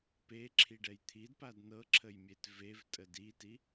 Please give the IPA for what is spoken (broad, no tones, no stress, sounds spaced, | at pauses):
p e ǁʰ i ɖ ɛ j t̪ʰ i d p a d n ɤ ǁʰ ə j mʲ e t v e v tʼ ə d i t i